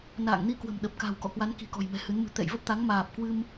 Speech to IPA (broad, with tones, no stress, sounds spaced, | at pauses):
n a̰ː˧˨ ŋ n i˧ k w ə̤˨˩ m ɗ ə˨˩ p̚ k a̤˨˩ w k ɔ̰˧˨ k w a˨˦ n k i̤˨˩ k ɔ̤˨˩ j m ɛ̤˨˩ h ɨ˨˦ n m ɨ̤˨˩ t̪ ɛ̰˧˨ j v ə˦˥ p̚ t̪ a˨˦ ŋ m aː˨˩ p̚ k w ɨ˧ m